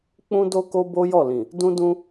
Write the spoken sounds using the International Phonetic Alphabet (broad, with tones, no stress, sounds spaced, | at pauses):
k͡p ũ˦ d o˦ k o˦ b o˦ j ɔ˦˨ l ĩ˨ | d ũ˦ d ũ˦